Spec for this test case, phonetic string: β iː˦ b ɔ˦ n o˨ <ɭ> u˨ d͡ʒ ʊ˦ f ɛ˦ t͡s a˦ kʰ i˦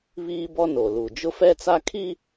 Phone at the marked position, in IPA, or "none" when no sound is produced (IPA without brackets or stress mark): l